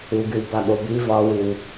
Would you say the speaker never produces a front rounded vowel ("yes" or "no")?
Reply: no